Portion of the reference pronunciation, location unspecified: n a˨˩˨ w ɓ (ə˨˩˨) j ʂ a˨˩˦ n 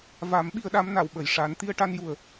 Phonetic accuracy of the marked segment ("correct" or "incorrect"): correct